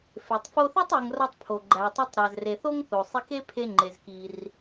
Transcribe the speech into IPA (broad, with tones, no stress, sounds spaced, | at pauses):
f e˩ tˤ f o˧ θ e˥ tˤ e˧ ŋ r ɒ˥ tˤ pʰ o˩ ɡ͡ǃ æ˩ tˤ u˧ tˤ ɾ æ˩ z r e˩ θ o˥ ŋ θ o˩ sˤ i˧ k e˥ pʰ e˧ ŋ͡ǃ e˩ z k i˩ r